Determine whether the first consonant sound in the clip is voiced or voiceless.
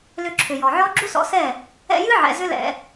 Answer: voiced